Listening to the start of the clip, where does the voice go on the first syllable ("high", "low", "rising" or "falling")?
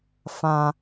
high